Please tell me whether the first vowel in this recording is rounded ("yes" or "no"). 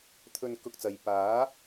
yes